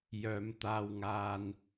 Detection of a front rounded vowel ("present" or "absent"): present